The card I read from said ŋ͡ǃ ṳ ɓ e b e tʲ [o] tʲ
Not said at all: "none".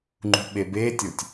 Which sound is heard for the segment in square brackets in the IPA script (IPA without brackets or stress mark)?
o